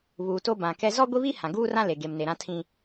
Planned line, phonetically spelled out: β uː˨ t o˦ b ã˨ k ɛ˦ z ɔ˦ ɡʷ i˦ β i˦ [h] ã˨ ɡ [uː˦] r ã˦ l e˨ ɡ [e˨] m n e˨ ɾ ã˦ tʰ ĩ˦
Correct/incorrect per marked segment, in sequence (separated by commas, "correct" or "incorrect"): correct, correct, correct